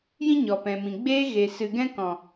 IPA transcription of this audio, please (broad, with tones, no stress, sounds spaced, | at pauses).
j ĩ˦ ɲ ɔ˨ p ɛ̃˨ m ĩ˨ ɡ͡b eː˧ ɣ e˨ s ɨ˨ ɡ ɛ̃˦ k ɔ̃˨